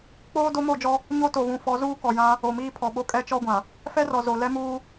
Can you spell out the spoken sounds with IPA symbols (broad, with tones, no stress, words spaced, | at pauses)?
k͡poː˦ do˦mo˦˨d͡ʒɔ˦ | ɲo˦to˨βũ˨ fɔ˨˦zuː˦ kɔ˨jã˦ | o˨miː˦pʰɔ˨ɓo˦ kʼɛ˦t͡ʃɔ˦ɡʷã˨ | fɛ˦rɔ˨ zo˨ lɛ˦muː˦